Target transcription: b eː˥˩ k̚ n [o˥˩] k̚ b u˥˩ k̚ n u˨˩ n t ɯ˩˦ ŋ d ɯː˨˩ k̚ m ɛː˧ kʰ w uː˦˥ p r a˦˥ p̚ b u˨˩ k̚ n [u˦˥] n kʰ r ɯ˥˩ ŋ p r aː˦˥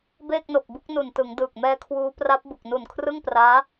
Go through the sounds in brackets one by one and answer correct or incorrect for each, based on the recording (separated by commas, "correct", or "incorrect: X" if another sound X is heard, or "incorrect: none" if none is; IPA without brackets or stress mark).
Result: incorrect: o˨˩, incorrect: u˨˩